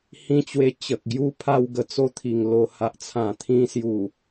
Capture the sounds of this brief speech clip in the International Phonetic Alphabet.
h ĩ˥˧ t͡ɕ w e˦ t͡ɕ ə˨ k̚ ɡ j u˦ pʰ a˥˧ w ɡ ə˧ t͡s o˥˧ t̪ʰ i˨˩ ŋ l o˧ h a˨ ʔ t͡sʰ ã˨˩ t̪ʰ ĩ˧ s j u˨˩

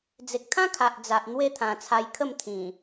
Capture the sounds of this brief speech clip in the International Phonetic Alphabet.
d͡z e˨ k̚ t̪ʰ ã˦ kʰ a˨ ʔ d͡z a˨ ʔ n̪ w e˦ t̪ʰ ã˨˩ t͡sʰ a˧ j kʰ ə˥˧ m t̪ʰ ĩ˨˩

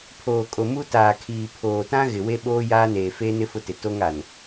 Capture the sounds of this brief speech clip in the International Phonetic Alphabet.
pʰ oː˨ kʼ o˨ m u˦ t aː˨ kʰ iː˨ pʰ oː˨ t ã˦ ɣ ɪ˨ w e˦ ɓ oː˦ j aː˦ n eː˨ f eː˦ n ɪ˦ f ʊ˦ t ɪ˨ t o˦ ŋ a˨ n

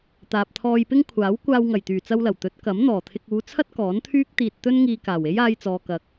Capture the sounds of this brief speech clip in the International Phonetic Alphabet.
t̪ aː˨ p̚ t̪ʰ ɔː˧ j p ɪ˥ ŋ kʷʰ aː˨˥ w kʷ aː˧ w ŋ ɐ˨˩ j t̪ yː˨˩ t͡s ɐ˧ w l ɐ˨˩ w t̪ ɵ˨˥ t̚ k ɐ˨˥ m n̪ ɔː˨˩ t̪ʰ ɪ˧ k̚ uː˨˧ t͡sʰ ɐ˥ t̚ k ɔː˨˥ n t̪ʰ yː˥ k̚ t̪ iː˧ t̚ t̪ ɵ˥ n ŋ iː˧ k aː˨˩ w e˥ j aː˧ j t͡s ɔː˨ k ɐ˨ k̚

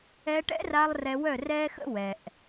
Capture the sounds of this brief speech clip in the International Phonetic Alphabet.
ɛ˧ ʈ ɛ̰˦ r a˧ lˠ r ɛ˧ w œ˦˨ r ɛː˦ x ə̰˦ w ɛ˨ ʔ

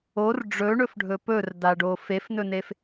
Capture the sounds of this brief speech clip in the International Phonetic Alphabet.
o r ɖ͡ʐ ɵ ɳ ɵ f ɖʱ ɵ p ɵ r d a ɖ o f e f n ɵ n e f

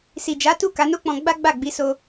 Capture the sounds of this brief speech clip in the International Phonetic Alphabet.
s i˨ d͡ʒ a˨˦ t u˦˨ k a˨˦ n o˦ k͡p ɔ̃˧ ɡ͡b a˦ ɡ͡b a˦˨ ɡ͡b i˨˦ s o˧

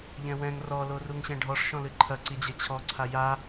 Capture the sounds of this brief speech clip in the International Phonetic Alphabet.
ʎ ɛ̃ w ɛ̃ ŋ r ɔ l o r u ŋ ɕ ɛ̃ ɖʱ ɔ ʂ ʃ ɔ̃ l ɨ ǃʰ ɐ ǀ i d͡ʑ ɛ t͡ɕʰ ɔ ǀʰ a j a

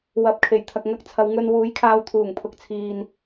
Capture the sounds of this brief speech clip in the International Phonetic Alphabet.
w ɐ˨˥ p̚ kʰ e˨˩ j t̪ʰ ɐ˨ k̚ ŋ ɐ˧ k̚ t͡sʰ ɐ˨˧ w ŋ ɵ˧ n w uː˨˥ j kʰ aː˧ w t̪ʰ uː˨˩ ŋ pʰ ʊ˨˥ k̚ t͡sʰ iː˧ n

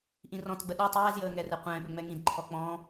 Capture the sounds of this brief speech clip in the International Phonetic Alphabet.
ʔ ĩ r ɔ̃ t ɡ͡b ə ɗ o tˤ ɛː z j əː ŋ ɛ r ɛ qʷ ɛ̃ː ɓ ʏ ŋ͡m ɛ ŋ ĩ d ǃʰ ɔ k͡p ɔ̃

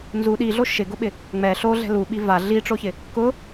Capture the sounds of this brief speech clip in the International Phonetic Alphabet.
n z u ɗ i ɮ o ʃ ɪ ɡ ʊ ɓ ɪ | ŋ͡m ɛ ɬ o ɮ ɛ̤ l u ɓ i v a ɮ i ʈ͡ʂ o ç ɪ | k ʊ

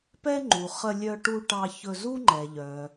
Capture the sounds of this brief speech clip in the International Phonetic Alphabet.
p ɛ˥ ŋ͡ǃ u˩ χ ə˧ lʲ œ˧ ʈ u˧ ʈ ɑ˧ ç ɵ˧ z u˥ ŋ͡ǃ ɛ˩ ʎ œ˩

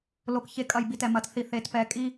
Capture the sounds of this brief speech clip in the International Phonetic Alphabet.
l o˨ k ç e˨ kʼ ɐ˨ j b i˨ t ɛ˨ m ɐ˨ t θ i˨ θ e˨ t p ɛ˨ kʼ i˦

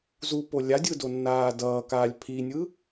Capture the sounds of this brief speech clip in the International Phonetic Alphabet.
z u p o lʲ a dʲ ɯ d o nː aː d ʌː k aː lʲ pʰ i nʲ ɯ

